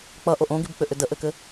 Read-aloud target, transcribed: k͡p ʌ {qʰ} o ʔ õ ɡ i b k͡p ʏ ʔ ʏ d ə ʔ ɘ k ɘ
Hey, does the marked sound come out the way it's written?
no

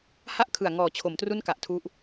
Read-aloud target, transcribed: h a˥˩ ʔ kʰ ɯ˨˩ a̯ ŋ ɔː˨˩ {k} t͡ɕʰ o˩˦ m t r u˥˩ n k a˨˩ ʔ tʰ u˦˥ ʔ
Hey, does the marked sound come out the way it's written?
no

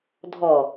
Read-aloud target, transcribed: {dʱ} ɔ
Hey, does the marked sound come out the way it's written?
yes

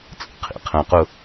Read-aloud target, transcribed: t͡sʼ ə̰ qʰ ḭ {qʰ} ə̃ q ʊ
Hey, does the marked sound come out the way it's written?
yes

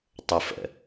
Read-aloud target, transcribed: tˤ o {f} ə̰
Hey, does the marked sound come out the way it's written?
yes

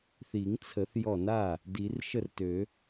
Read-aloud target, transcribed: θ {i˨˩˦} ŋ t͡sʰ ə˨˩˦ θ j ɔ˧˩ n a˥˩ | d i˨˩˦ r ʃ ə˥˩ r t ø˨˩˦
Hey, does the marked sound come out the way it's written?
yes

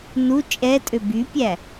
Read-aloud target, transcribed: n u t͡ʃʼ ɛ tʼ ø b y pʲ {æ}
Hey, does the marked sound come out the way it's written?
yes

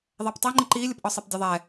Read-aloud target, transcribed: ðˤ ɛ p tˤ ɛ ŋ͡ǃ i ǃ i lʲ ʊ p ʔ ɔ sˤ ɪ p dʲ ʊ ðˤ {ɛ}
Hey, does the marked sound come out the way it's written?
yes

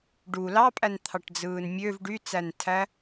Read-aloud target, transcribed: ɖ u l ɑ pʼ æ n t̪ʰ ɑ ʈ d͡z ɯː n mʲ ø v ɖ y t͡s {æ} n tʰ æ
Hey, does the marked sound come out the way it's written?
yes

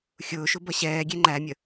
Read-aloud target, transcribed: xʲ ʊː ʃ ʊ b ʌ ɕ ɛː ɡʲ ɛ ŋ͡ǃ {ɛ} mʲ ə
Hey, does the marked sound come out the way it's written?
no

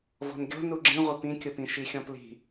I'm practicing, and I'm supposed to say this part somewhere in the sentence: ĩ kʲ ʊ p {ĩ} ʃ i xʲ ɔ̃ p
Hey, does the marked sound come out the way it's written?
yes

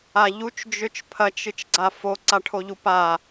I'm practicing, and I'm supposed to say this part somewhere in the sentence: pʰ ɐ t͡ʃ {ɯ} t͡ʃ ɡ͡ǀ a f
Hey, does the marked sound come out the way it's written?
yes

